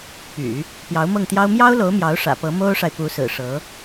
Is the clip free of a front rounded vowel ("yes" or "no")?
no